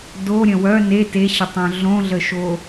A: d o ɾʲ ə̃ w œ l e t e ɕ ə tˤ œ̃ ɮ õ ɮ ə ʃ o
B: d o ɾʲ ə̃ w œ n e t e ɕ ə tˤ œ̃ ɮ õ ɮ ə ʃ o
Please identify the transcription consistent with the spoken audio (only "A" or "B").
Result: B